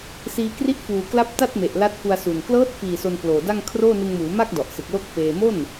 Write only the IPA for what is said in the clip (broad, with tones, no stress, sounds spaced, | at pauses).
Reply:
s iː˧ k r i˦˥ ʔ f uː˨˩ k l a˦˥ p̚ t a˥˩ t̚ m e˨˩ ʔ l a˦˥ t̚ k u˧ a̯ s u˨˩ n k l ɤː˦˥ t̚ f iː˨˩ s o˧ n k l oː˨˩ d a˥˩ ŋ kʰ r oː˥˩ n ɯ˧ ŋ m uː˩˦ m a˥˩ k̚ d ɔ˨˩ ʔ s ɯ˨˩ k̚ l o˥˩ k̚ p eː˧ m o˥˩ n